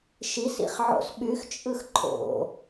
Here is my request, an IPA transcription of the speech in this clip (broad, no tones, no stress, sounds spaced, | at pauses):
ʃ i s ḭ χ ʕ o̰ s ɓ y x t͡ʃʼ ɯ x ǃʰ o̰